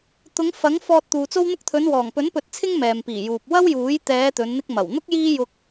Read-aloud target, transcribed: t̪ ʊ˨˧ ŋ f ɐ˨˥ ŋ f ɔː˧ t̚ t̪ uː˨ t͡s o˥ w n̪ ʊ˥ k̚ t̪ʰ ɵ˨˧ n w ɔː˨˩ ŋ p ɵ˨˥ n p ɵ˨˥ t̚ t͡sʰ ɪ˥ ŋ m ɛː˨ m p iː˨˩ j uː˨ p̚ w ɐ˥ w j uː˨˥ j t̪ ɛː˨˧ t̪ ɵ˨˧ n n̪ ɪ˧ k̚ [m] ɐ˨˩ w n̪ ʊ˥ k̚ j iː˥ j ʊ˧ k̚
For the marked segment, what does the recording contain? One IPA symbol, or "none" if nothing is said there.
m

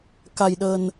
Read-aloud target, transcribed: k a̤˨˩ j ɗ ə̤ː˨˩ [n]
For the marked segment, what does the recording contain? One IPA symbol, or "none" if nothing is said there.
n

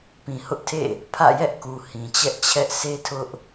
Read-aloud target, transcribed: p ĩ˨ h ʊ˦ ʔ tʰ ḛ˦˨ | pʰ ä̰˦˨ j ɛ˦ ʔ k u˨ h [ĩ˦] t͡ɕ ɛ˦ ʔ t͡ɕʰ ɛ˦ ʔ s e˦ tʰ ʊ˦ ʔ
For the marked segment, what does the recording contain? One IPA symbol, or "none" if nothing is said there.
ĩ˨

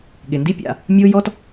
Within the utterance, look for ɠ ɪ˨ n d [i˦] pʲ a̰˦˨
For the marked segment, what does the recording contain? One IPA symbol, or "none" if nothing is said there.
i˦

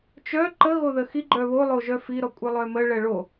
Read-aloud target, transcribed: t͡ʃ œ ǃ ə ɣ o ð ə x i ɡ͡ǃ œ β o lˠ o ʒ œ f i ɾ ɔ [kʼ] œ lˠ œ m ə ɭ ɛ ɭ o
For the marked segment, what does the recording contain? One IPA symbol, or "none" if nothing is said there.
kʷʼ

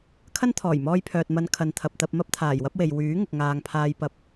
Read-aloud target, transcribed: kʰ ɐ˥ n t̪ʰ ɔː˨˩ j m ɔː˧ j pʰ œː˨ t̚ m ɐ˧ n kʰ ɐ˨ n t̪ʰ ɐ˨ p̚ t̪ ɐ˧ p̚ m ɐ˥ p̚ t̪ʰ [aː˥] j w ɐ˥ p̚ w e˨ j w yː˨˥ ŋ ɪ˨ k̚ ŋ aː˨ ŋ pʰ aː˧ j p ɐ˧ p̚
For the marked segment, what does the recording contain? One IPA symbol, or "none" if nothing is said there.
aː˨˩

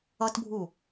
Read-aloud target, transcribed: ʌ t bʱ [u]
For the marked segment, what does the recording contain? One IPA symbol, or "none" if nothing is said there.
u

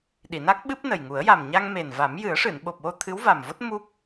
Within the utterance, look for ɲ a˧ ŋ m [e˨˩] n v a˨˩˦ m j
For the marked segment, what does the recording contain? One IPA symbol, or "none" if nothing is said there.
e˨˩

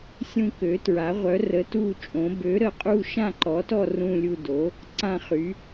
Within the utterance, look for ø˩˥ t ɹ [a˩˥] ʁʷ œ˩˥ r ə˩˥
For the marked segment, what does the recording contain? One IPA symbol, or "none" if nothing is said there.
a˩˥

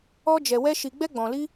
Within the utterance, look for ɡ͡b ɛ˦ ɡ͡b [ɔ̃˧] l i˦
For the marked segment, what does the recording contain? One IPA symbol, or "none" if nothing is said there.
ɔ̃˧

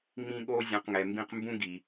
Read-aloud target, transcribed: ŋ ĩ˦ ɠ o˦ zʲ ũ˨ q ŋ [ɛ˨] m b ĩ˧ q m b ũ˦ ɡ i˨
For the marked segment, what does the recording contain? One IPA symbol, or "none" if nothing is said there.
ɛ˨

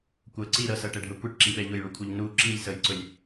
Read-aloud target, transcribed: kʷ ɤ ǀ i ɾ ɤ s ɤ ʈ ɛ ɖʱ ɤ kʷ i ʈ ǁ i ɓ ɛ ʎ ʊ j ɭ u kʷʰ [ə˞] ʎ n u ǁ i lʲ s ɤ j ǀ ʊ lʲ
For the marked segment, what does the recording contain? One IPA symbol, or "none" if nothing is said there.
ɤ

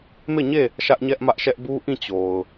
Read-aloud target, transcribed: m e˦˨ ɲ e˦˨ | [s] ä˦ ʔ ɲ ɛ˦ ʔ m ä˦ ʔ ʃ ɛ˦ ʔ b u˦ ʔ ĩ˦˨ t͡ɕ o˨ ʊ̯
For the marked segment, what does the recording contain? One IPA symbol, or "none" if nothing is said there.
ʃ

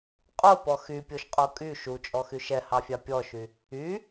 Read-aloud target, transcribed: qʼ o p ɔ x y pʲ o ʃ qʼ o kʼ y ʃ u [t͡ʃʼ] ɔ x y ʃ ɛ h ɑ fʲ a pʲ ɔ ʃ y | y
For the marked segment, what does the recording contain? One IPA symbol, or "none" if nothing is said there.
t͡ʃʼ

